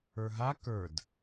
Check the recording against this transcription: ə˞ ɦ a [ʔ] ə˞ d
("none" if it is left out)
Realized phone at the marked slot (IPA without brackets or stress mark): k